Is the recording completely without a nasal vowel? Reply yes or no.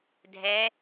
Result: yes